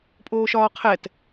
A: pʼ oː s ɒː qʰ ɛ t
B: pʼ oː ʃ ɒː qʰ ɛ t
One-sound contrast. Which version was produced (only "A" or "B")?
B